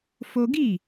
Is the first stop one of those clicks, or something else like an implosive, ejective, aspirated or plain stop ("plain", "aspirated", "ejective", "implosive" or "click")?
plain